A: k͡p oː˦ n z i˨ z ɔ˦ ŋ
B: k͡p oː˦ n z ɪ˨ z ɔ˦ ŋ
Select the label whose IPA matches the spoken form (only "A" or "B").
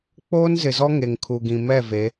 B